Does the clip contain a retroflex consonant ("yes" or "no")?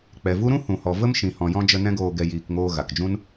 no